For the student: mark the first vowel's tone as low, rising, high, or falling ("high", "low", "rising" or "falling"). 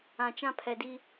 low